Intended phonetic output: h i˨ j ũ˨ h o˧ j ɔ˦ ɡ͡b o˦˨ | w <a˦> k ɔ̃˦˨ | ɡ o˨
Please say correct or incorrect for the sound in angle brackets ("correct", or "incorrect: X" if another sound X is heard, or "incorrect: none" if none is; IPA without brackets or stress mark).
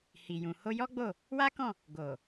correct